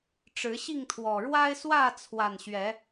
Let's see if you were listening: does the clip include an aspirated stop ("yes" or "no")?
yes